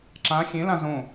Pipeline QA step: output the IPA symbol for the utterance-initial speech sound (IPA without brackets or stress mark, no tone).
ǁ